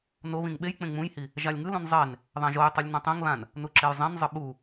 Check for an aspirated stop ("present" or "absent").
absent